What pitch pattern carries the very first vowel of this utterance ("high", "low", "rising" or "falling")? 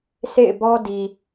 falling